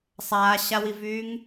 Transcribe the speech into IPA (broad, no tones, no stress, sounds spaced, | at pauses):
sˤ aː ɕ a w i v yː ŋ